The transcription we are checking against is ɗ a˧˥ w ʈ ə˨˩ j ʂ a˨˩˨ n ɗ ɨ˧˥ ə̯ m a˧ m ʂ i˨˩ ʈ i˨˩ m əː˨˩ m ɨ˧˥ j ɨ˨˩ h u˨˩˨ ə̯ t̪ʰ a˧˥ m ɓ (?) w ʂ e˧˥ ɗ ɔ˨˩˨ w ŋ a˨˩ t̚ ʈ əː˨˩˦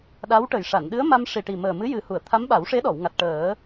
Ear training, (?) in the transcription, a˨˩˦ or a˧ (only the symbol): a˨˩˦